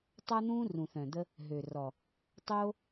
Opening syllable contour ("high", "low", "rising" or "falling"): high